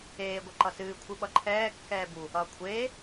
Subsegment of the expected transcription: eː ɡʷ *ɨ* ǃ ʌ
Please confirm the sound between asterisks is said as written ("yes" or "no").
no